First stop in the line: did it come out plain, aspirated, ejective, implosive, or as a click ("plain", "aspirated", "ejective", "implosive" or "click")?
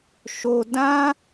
plain